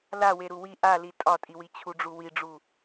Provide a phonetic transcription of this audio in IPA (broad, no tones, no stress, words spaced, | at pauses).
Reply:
lawe ɾuwi ʔali tʼɒtʼiwi t͡ɕʰuɖ͡ʐuwiɖ͡ʐu